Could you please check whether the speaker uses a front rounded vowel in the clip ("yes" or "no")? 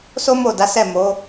no